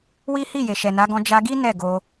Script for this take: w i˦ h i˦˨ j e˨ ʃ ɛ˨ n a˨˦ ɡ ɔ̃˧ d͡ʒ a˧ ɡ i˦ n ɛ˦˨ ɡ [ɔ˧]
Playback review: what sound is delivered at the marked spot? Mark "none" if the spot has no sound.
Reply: o˧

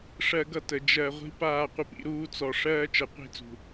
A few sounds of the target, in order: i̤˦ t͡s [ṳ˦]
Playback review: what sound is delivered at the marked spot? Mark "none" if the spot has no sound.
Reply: ṳ˨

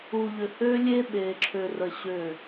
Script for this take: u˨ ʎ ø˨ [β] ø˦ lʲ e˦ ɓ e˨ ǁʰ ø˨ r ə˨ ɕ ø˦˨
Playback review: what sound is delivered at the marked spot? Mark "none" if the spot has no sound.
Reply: h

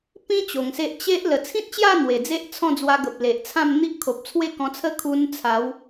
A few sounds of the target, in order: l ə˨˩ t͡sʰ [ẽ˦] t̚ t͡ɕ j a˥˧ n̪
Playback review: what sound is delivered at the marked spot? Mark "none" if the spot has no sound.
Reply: ĩ˦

